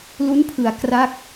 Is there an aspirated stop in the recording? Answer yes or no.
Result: yes